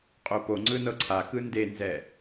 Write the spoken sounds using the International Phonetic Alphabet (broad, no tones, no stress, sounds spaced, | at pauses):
qʼ o p o ŋ͡ǀ ɯ n ɤ ǀʰ a k ɯ n d e n z ɛ